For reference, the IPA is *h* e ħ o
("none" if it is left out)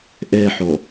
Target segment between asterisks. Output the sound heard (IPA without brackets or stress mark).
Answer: ʔ